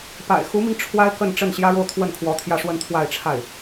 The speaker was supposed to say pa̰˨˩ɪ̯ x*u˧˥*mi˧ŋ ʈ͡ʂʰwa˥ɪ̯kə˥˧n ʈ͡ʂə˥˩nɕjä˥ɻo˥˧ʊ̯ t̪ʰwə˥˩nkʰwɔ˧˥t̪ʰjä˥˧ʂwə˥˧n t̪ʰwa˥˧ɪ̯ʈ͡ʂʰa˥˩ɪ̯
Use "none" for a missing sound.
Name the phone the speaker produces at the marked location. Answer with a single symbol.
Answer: u˧˥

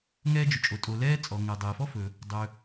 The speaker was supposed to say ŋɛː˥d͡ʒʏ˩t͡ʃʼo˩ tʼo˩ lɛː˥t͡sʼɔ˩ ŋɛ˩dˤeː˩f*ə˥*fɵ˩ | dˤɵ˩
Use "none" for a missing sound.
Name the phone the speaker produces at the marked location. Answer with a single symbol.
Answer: ɔ˥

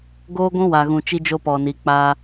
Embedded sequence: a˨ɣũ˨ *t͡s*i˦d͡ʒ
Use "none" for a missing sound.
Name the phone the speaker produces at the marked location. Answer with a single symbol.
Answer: t͡ʃ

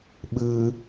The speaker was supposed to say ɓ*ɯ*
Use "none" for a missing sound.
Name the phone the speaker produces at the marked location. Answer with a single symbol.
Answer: ɯ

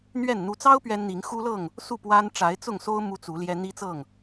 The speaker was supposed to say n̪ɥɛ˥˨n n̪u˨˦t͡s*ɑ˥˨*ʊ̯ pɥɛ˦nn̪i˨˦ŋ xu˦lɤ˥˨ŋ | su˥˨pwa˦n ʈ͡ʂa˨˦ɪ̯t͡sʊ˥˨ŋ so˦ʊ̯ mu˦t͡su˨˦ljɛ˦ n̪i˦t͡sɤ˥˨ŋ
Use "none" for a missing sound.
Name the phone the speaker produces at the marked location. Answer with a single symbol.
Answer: ɑ˦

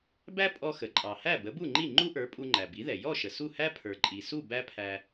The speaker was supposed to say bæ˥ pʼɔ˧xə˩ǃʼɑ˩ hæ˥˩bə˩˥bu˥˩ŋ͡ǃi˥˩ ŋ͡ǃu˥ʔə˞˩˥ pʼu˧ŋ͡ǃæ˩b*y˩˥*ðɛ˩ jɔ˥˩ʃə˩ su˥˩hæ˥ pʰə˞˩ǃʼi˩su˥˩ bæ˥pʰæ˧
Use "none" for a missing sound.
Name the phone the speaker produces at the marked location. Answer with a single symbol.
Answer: i˩˥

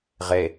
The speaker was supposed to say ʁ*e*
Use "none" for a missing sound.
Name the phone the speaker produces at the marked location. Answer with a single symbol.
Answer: e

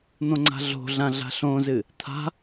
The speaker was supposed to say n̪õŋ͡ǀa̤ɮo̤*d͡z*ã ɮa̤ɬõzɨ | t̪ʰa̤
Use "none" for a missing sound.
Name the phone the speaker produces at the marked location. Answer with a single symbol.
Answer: ɮ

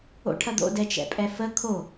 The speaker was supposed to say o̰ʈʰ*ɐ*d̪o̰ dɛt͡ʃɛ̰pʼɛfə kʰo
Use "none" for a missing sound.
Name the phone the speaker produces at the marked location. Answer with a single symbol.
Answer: ɐ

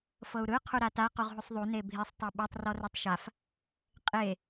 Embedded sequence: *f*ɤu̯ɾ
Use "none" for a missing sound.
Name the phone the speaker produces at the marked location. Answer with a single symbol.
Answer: f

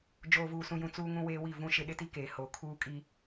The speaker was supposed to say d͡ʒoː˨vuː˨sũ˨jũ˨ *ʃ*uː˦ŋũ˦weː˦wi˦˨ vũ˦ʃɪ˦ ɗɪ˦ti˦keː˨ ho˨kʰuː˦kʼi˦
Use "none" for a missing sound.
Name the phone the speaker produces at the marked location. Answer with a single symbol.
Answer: t͡s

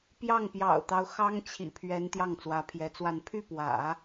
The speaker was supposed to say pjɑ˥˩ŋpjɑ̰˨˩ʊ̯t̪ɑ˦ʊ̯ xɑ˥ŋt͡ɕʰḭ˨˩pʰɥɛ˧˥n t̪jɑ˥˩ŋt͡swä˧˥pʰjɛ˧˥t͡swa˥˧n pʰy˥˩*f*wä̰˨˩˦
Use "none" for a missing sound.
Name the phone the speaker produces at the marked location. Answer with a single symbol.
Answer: p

